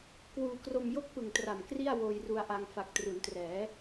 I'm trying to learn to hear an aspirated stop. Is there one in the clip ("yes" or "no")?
no